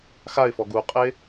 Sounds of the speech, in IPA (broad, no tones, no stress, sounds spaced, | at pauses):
x a ɪ̯ f ɔ ɡ u qʼ e